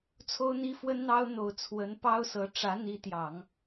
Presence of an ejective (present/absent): absent